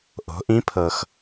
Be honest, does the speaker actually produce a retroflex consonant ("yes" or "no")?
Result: no